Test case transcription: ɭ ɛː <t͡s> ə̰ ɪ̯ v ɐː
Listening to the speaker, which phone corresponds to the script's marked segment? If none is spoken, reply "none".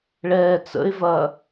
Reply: t͡s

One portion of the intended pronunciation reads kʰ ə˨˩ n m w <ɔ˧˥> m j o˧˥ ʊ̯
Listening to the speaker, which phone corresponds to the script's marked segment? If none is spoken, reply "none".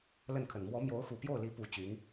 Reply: ɔ˧˥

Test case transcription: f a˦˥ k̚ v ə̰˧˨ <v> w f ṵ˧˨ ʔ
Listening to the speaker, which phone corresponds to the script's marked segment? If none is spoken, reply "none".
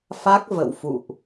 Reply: none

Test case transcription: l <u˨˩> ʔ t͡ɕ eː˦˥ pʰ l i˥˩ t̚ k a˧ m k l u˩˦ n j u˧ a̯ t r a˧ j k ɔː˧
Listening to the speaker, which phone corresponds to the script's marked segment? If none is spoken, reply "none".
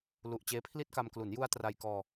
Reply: u˨˩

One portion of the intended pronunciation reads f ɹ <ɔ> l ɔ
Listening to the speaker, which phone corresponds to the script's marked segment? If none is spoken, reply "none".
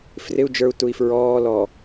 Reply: ɔː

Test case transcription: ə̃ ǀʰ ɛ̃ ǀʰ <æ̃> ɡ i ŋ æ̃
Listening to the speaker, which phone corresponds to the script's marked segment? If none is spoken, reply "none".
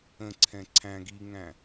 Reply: æ̃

